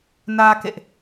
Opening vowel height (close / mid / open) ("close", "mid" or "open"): open